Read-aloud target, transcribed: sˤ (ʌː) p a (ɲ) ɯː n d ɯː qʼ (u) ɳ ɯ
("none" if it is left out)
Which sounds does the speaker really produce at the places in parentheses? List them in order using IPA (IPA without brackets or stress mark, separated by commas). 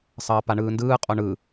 ʌː, ɳ, o